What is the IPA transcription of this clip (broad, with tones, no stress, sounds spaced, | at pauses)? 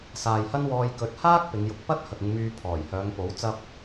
s aː˨ j h ɐ˥ n w ɔː˧ j k ɵ˨ t̚ h aː˥ k̚ p ɪ˨˧ ŋ j ʊ˧ k̚ p ɐ˥ t̚ h ɐ˨ k̚ ɪ˧ ŋ m yː˧ pʰ ɔː˨˩ j h œː˨˧ ŋ p o˨˥ w t͡s ɐ˥ p̚